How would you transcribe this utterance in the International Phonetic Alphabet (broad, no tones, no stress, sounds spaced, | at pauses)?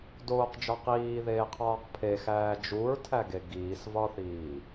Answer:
d oː q d͡ʒ ɒ q iː ð eː qʰ ɒː q pʰ e x æː d͡ʒ u ɹ tʰ æ ɡ e ɡ iː s v ɒ θ iː